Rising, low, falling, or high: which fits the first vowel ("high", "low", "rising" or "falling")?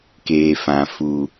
low